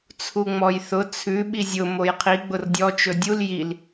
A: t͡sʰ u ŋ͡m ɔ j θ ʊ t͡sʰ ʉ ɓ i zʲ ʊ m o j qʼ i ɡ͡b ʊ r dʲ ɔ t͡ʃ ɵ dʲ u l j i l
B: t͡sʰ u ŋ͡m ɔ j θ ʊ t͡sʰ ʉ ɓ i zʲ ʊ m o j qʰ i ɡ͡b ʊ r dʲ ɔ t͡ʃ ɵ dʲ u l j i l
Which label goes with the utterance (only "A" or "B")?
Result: B